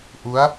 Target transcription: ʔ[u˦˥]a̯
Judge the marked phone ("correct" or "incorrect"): correct